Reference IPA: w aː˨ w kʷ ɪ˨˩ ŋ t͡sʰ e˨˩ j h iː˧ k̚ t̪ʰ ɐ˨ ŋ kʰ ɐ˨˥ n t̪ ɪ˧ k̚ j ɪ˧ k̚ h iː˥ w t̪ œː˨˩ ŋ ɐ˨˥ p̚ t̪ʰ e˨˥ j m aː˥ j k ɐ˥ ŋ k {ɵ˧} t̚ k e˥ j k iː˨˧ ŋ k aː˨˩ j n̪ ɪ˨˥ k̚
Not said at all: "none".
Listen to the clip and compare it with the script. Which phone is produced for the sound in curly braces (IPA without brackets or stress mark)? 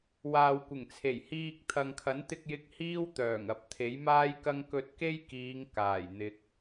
ɵ˧